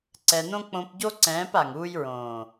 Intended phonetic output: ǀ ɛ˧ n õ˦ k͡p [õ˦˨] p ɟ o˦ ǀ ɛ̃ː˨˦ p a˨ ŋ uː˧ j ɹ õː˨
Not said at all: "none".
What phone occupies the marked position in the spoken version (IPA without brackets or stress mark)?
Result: õ˧